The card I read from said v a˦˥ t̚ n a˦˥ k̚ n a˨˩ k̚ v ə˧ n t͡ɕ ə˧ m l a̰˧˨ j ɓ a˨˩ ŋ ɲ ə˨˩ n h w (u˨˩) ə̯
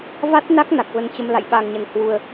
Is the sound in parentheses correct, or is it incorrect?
correct